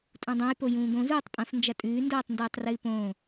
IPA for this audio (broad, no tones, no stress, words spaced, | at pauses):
tʼũdˤɐ̃j pojũːɡõ zuːtˤpʼɐ̃f nd͡ʒɐtʼʉː ndoːtˤndʉːtˤrɨːpõː